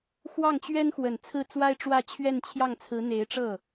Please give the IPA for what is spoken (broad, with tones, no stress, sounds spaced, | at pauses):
x w ɑ˥˩ ŋ t͡ɕ ɥ ɛ˥ n x w ə˨˩ n t͡sʰ ɹ̩˥˩ t͡s w a˥ ɪ̯ ʈ͡ʂ w ä˥˧ t͡ɕʰ ɥ ɛ˥˧ n t͡ɕʰ j ɑ˥˩ ŋ t͡sʰ ɹ̩˧˥ n̪ e˧˥ ɪ̯ ʈ͡ʂ ɤ˥˩